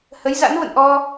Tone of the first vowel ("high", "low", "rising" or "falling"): rising